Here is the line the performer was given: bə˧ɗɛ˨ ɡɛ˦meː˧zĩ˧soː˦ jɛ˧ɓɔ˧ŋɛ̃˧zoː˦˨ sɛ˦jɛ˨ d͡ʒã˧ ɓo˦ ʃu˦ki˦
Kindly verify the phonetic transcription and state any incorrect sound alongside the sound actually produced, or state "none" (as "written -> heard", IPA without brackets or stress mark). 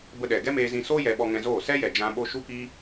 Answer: none